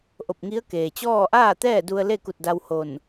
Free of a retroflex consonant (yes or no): yes